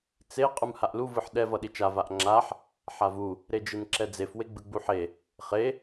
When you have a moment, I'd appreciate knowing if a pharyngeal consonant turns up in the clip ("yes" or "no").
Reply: yes